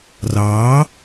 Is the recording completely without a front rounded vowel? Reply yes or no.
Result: yes